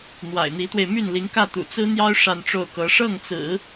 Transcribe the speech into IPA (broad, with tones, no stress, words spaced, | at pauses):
n̪wa̰˨˩ɪ̯n̪i˧˥t̪we˧ɪ̯ my˥˩nli˧˥ŋkä˥˩t̪ṵ˨˩ t͡sɹ̩˥n̪jɑ˥ʊ̯ ʂa˥˧nʈ͡ʂo˥˩ʊ̯kɤ˧˥ ʂɤ˥˩ŋt͡sɹ̩˨˩˦